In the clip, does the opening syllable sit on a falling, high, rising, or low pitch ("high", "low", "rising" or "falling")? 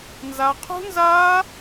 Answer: high